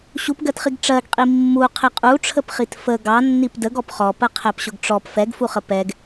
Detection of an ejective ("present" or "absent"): present